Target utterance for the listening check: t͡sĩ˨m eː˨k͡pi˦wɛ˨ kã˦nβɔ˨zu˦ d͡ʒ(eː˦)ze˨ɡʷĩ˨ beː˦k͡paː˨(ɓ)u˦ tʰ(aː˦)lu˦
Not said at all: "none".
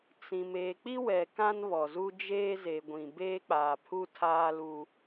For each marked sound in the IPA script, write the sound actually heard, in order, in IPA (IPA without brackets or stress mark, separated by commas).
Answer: eː˦, pʰ, aː˦